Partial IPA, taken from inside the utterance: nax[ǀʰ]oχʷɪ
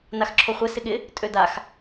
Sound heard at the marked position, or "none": ǁʰ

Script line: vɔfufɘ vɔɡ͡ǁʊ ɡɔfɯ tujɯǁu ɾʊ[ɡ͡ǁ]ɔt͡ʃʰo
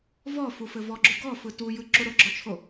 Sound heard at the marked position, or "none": ɡ͡ǁ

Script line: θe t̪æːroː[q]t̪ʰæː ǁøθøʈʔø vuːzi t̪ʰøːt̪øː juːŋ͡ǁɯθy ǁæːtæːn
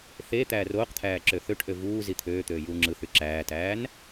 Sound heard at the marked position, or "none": q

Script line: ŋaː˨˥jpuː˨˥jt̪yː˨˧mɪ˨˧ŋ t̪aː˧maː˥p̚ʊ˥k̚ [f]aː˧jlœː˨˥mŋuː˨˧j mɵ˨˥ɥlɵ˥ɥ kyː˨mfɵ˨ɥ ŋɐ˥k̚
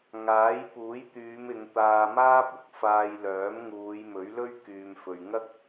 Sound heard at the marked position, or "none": f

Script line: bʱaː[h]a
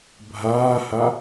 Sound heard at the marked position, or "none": h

